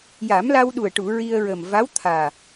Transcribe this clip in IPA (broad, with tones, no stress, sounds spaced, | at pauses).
j a˨˩˦ m l a˧ w ɗ u˨˩ ə̯ ʈ u˨˩˨ ɹ i˧ ə̯ ɹ ə˨˩ m v a˧˥ w t̪ʰ aː˨˩